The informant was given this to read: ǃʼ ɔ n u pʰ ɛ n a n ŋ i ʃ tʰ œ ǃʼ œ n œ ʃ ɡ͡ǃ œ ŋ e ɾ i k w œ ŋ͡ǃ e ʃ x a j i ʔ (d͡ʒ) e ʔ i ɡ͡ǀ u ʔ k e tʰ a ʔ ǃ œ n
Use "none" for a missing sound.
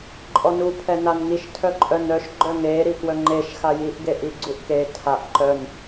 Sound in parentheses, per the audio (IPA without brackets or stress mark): ɡ